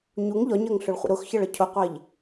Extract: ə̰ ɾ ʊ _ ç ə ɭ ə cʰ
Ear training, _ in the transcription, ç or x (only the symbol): x